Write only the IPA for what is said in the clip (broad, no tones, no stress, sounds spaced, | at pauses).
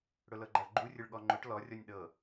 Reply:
ɽ ʊ l ɤ ɡ͡ǃ a ɭ ɡ͡ǃ u rʲ ʊ ɭ ɠ ɔ ŋ͡ǃ ʊ ʈ l ɔ rʲ ɔ nʲ ɗ ɤ